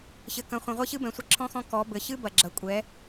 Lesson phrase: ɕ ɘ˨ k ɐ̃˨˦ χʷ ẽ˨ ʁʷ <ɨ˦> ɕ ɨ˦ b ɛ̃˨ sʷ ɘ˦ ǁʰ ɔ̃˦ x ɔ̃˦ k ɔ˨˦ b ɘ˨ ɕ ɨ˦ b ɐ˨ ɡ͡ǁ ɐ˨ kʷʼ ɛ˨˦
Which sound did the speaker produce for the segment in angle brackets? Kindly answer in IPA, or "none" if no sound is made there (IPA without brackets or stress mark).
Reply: e˦